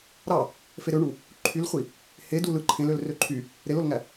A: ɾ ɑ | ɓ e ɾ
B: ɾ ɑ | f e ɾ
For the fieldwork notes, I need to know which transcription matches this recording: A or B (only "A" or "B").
B